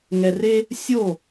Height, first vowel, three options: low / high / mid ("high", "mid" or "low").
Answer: mid